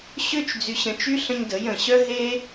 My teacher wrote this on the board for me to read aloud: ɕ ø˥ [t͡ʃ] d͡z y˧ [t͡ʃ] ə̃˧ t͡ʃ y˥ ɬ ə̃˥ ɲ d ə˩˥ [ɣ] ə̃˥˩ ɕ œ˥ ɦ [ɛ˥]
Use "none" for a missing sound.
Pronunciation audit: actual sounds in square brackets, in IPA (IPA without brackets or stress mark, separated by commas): t͡ʃ, ɕ, j, e˥